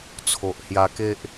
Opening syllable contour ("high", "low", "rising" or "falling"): low